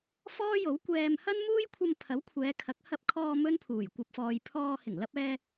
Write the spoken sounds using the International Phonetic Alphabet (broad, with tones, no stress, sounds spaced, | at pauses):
f ɔː˥ j o˨˥ w kʷ ɛː˧ m h ɐ˥ n m uː˥ j kʷʰ ɐ˧ m pʰ ɐ˨˥ w kʷʰ ɛː˨˧ kʰ ɐ˨˥ k̚ h ɐ˧ p̚ kʰ ɔː˧ m ɵ˥ n pʰ uː˨˩ j kʷ ɐ˨ p̚ f ɔː˨ j pʰ ɔː˧ h ɪ˨˩ ŋ l ɐ˧ p̚ ɛː˧